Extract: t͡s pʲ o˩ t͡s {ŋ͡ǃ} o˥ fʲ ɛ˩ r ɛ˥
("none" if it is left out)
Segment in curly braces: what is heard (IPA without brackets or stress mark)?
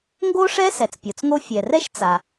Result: ŋ